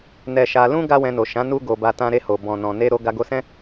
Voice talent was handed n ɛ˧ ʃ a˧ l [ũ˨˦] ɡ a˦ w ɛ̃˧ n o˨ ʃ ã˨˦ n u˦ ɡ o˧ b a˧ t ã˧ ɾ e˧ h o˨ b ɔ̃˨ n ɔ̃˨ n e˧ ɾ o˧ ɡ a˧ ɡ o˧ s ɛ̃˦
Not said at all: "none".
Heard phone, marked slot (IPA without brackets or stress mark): ũ˦